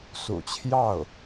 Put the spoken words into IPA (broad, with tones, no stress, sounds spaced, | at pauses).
s ṵ˨˩ t͡ɕʰ j ɑ˥˩ ʊ̯